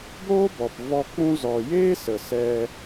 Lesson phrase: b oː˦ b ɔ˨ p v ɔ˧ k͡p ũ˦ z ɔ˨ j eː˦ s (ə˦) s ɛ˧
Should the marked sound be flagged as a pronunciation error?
yes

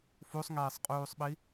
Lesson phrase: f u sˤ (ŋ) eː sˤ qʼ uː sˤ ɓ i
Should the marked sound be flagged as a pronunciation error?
no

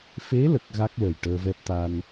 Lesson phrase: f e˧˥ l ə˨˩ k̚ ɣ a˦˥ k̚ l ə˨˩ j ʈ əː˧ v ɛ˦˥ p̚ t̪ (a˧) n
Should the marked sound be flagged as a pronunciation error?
no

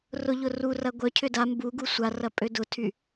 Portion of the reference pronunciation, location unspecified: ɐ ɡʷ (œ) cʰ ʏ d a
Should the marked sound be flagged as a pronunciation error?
no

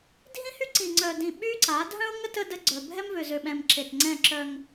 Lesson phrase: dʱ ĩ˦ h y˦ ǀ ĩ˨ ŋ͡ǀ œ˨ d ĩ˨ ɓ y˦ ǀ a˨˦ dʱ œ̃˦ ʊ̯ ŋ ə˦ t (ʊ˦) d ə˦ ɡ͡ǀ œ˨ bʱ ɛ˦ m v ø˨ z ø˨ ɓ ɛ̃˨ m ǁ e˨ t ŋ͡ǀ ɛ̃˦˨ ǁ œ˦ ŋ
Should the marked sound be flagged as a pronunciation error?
yes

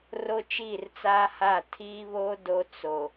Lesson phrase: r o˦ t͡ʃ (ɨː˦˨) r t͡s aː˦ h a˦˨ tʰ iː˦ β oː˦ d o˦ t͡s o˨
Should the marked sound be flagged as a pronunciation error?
yes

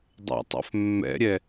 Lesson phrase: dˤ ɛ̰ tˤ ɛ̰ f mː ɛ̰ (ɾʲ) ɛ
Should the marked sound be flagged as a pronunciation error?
no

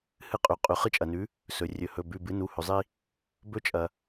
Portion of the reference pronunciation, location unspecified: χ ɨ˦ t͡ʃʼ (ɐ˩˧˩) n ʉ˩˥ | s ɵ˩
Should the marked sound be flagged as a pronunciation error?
yes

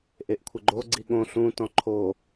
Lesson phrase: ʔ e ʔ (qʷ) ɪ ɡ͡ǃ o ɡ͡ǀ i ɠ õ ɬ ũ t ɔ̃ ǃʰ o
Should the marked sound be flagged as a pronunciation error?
yes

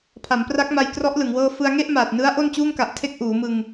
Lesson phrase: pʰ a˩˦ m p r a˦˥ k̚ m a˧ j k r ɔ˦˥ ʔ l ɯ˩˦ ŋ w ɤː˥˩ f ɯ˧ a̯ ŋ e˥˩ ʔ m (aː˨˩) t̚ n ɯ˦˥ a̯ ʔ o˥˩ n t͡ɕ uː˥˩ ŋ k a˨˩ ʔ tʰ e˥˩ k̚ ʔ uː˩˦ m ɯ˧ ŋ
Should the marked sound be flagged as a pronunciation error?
no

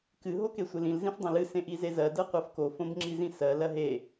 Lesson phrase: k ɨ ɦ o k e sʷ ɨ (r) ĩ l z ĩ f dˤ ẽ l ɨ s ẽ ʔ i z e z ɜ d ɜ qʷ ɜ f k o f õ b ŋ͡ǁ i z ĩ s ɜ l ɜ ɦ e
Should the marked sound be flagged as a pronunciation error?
yes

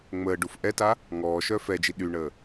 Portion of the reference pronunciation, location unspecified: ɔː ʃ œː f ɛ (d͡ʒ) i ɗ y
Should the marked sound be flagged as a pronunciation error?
no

